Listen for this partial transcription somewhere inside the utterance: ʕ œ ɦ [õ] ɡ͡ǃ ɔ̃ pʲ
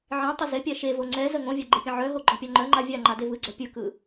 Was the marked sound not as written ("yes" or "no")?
yes